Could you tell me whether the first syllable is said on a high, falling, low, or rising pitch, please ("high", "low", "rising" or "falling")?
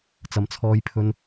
low